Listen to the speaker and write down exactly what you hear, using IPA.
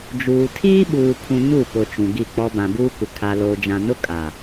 d͡ʒuː˨ tʰiː˦ɓuː˨ pʰũ˨ ɲu˦˨pʊ˨ t͡ʃũ˨ɡi˦˨k͡pɔ˦ bã˨buː˦kʷɪ˨ kʰa˨loː˨d͡ʒã˨nʊ˦ kʼa˨

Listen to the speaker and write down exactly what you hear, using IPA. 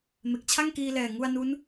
me˨˩k̚t͡ɕʰa˥˩ŋkiː˧lɛː˨˩ ŋu˧a̯ nu˦˥n

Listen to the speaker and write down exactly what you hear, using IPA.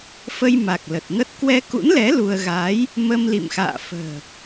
fə˧jma˨˩k̚ lə˨˩t̚ŋə˦˥t̚ kwɛ˧kṵ˧˥nlɛ˨˦ lu˧ə̯ ɣaː˨˦j | mə˧mlḭ˧˨mxa̰ː˧˨ fə̤ː˨˩

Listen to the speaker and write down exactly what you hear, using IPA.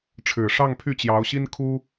ʈ͡ʂʰɻ̩˨˩ʂɑ˥˧ŋpʰy˥˩ t͡ɕjɑ˧˥ʊ̯ɕi˥nkʰu˥

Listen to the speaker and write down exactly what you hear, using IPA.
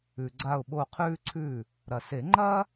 ʉ˩ɡ͡ǀa˧˩ʊ̯ɓo˧˩ qʰʉː˥ǀʰʉː˥˩ | ɾɐ˩se˨˩˦ ŋ͡ǃɐː˥

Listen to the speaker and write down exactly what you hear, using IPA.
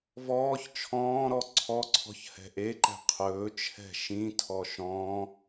vɔːç t͡ʃʰɔ̃ːɾɔ ǀʰɔǀʰɔ̤ç hɛ̤ʔeǃɛ̤ qʰɵːt͡ʃʰɛ̤ ʃĩtʰɔ ʃɔ̃ː

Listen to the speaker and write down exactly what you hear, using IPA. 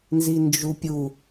nzind͡ʒupʲu

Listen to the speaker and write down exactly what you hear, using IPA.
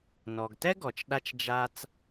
nɔ˨ɡtɛ˥ɡɔ˨t͡ʃ ɗa˥t͡ʃd͡ʒa˥t͡s

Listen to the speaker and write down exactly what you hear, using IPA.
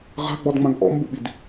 ʁa̤ɡ͡bɔdŋ͡mãɡ ʔɔ̰mbuɓid

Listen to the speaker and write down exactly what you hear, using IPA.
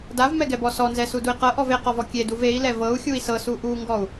davmɛɡɛbɔ sɔnzɛsudui̯ qɤʔɔv eqɔvɔ kʲeduv ei̯lɛ vɤu̯xʲui̯ sɤsu ʔuŋɡɔu̯

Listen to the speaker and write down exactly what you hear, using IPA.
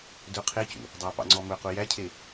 dɵ qʰecṵ | dˤɑpɑ̰ŋ͡ǀɔ mɵqu jæcʰe

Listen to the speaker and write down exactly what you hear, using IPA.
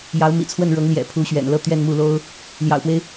jɑ˧˥ʊ̯mḭ˨˩t͡sʰwə˥˩n ɻɤ˧˥ŋljɛ̰˨˩ pʰu˧˥ɕɥɛ̰˨˩nlɤ˥˧ t̪ɥɛ˥˧nmu˥˩lo˥ʊ̯ | ljɑ̰˨˩ʊ̯pwe˦ɪ̯

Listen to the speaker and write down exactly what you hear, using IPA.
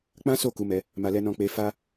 k͡pã˦so˦˨ ku˨˦mɛ˧ | ma˨lɛ˨nɔ̃˨ k͡pe˧fa˦

